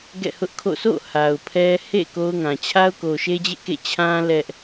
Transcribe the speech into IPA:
ɡ ɛ̰˦˨ h ʊ˦ ʔ kʰ o̰˦˨ sʰ o̰˦˨ h a˨ ʊ̯ pʰ ɛ˦ h ḛ˦˨ k o˦ ʊ̯ ŋ ã˨ t͡ɕʰ a˦ ʊ̯ k o˨ ʃ e˦ d͡ʑ ḛ˦˨ k ḛ˦˨ t͡ɕʰ ã˦ l ɛ˦ ʔ

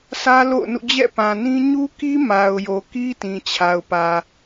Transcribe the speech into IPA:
s ä˦ l o̰˦˨ ʊ̯ n ṵ˦˨ d͡ʑ ɛ̰˦˨ p ã˨ n ĩ˦ ɲ u˦ k i˦ m a˨ ʊ̯ j o˨ k i˦ t ĩ˨ t͡ɕʰ a˨ ʊ̯ p ä˨

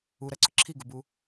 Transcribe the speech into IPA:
u ɾ ɜ ǀ ʊ ǁʰ i ɡ u b u

